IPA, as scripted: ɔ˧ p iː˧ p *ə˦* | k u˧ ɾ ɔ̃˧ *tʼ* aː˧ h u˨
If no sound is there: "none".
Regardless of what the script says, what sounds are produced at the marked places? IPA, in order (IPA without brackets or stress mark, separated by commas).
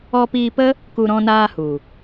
ə˦, n